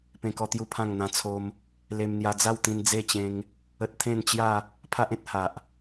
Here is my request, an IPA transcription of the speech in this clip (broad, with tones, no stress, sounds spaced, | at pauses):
p ẽ˦ k ɔ˦ t̪ j u˦ pʰ ã˥˧ ŋ n̪ ã˧ t͡sʰ o˧ m | l e˧ m n̪ j a˧ d͡z a˥˧ w t̪ ĩ˧ n d͡z e˥˧ t͡ɕ ẽ˧ ŋ | ə˦ t̚ t̪ʰ ẽ˥˧ n t͡ɕ j a˥˧ | pʰ a˦ ʔ ẽ˦ t̚ h a˨ ʔ